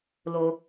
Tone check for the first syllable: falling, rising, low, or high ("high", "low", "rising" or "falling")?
high